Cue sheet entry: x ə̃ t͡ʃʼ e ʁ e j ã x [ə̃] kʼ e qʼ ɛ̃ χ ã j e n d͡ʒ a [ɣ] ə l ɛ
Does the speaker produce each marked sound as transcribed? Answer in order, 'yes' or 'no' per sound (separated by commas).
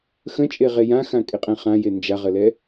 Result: no, no